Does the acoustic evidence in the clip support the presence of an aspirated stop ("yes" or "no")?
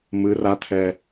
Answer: yes